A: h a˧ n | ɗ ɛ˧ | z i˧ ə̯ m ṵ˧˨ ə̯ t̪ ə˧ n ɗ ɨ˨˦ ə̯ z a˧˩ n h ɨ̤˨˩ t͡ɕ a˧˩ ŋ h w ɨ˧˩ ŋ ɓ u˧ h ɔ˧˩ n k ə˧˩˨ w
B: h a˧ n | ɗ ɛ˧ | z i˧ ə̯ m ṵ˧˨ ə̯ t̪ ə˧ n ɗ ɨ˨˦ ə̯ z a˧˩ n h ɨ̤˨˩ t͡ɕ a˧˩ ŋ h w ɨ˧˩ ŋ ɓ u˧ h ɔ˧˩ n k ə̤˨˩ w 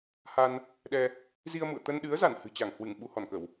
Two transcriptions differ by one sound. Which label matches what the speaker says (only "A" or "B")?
A